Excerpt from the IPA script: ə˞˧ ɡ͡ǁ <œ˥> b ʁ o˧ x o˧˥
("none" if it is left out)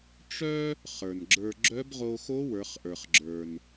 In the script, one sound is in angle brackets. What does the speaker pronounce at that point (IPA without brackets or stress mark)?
œ˧˥